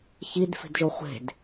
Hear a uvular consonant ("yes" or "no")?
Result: yes